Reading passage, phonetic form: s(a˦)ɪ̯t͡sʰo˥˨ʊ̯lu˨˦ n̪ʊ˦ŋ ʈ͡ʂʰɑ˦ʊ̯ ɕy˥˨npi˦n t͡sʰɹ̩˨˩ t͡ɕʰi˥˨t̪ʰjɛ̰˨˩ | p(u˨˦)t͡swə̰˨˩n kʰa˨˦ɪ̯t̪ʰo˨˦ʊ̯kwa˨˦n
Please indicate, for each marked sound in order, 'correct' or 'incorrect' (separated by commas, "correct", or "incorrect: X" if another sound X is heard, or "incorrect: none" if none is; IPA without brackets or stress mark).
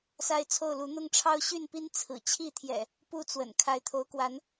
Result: correct, incorrect: u˦